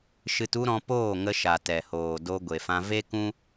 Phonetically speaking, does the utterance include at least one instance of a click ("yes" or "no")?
no